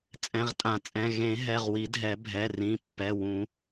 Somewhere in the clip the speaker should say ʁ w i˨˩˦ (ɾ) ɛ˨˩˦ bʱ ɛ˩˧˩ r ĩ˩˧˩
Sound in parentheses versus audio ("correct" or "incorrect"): incorrect